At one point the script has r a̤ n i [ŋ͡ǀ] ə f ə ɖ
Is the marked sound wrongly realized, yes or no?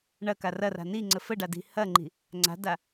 no